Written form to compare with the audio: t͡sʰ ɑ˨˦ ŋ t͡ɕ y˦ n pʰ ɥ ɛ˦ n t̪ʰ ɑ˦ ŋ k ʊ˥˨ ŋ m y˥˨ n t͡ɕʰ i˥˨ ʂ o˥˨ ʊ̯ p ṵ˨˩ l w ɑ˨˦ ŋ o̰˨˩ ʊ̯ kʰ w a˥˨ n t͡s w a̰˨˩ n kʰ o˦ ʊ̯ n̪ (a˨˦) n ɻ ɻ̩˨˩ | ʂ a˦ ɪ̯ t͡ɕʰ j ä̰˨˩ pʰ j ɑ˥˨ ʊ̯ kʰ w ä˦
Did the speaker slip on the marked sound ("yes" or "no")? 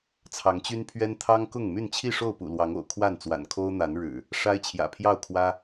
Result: no